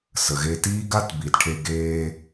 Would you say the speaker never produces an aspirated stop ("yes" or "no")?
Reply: no